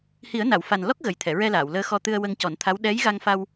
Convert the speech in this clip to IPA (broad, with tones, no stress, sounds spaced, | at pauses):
h i˨˩˦ ə̯ n a˨˩˨ w f a˨˩ n l ɔ˦˥ k̚ ɣ ə˨˩ j t̪ʰ ɛ˨˩˨ ɹ ɛ˧ l aː˨˩˨ w l əː˧ x ɔ˧ t̪ ɨ˧ ə̯ w ə˧ ŋ c ɔ˨˩˦ n t̪ʰ a˧˥ w ɗ ɛ˧˥ j ɣ a˧ ŋ f a˧ w